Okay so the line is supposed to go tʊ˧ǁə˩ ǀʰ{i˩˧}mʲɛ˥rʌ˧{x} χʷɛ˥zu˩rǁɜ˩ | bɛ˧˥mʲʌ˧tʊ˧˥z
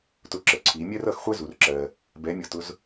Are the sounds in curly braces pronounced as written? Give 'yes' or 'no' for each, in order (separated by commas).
yes, yes